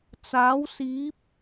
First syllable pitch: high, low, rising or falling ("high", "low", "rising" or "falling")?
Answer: rising